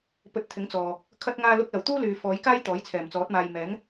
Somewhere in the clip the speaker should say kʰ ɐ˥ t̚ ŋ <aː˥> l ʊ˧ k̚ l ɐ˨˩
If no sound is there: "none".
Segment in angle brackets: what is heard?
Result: aː˧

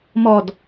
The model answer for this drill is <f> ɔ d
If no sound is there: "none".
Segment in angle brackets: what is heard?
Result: m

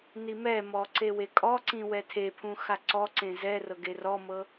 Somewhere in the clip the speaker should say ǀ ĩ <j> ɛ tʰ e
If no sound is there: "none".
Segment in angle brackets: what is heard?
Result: w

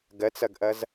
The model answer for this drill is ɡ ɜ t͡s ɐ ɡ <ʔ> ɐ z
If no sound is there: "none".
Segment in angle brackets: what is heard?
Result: ʔ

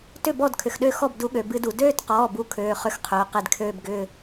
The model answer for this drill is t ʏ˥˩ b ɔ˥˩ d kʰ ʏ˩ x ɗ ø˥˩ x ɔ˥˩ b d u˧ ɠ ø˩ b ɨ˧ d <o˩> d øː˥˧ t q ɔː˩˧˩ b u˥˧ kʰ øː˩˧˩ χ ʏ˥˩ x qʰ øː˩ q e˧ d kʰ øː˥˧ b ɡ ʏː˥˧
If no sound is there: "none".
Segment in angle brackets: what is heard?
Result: u˩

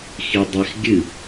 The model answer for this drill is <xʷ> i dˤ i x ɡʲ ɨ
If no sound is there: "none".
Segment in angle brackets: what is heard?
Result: x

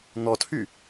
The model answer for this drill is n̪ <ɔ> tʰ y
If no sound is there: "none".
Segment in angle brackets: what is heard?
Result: ɔ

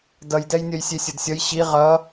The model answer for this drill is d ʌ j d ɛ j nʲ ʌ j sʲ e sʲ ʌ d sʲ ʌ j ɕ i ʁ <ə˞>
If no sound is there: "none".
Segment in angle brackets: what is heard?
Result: ʌ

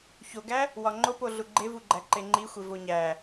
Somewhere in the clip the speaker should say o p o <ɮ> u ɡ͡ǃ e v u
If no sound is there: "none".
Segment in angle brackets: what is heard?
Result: ɮ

